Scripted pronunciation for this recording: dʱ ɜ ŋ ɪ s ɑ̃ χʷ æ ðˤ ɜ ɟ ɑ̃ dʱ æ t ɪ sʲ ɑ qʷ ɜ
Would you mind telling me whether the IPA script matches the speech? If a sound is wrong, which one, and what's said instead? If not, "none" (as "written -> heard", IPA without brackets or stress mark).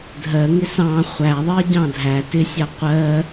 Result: none